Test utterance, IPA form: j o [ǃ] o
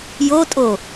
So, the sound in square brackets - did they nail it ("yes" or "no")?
no